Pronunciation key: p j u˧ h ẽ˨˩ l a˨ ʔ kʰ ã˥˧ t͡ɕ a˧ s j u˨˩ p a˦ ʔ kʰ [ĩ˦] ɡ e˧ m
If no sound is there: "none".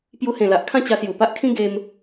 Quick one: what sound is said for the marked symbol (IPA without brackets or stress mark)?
ĩ˦